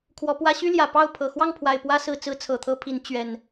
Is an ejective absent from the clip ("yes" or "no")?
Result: yes